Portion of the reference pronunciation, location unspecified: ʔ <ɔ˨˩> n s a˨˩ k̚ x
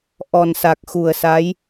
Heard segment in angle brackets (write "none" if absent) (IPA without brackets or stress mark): ɔ˨˩